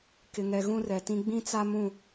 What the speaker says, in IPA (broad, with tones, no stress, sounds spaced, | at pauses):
k ɪ˨ ŋ ɛ˨ ɣ ũ˦ r ɛ˨ t ĩ˦ ɡ͡b ĩ˦ t͡s a˦ m ũ˦˨